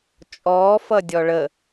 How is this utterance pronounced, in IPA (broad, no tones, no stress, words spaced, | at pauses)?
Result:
t͡ʃʼɔːfʌdʲɔ ɭə